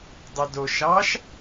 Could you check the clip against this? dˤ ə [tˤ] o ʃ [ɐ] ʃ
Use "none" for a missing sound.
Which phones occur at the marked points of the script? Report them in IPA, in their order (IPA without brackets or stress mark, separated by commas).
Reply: d, ɑ